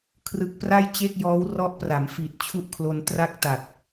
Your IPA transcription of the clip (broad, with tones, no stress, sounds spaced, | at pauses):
kʰ r ɯ˨˩ k̚ p r a˥˩ j t͡ɕ e˥˩ k̚ j ɔː˦˥ w r ɔ˦˥ ʔ p r a˩˦ m f i˨˩ t̚ t͡ɕʰ u˦˥ ʔ kʰ l o˧ n t r a˥˩ k̚ t a˨˩ t̚